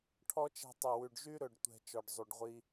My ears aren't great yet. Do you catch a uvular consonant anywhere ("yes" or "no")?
yes